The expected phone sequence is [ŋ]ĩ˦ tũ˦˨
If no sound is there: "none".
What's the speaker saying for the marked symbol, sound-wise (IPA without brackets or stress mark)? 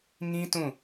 ŋ